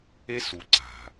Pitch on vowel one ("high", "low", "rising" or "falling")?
high